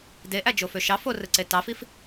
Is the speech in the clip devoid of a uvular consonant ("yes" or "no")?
yes